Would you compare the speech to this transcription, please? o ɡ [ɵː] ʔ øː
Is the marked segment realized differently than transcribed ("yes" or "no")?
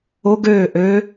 yes